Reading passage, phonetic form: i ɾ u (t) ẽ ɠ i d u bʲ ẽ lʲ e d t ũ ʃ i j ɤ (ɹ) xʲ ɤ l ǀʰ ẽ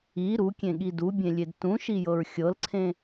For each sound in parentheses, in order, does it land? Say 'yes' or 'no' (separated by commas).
no, yes